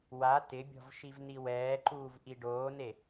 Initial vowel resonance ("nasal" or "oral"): oral